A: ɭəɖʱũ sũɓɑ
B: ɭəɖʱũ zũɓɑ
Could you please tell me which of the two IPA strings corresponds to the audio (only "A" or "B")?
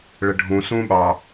A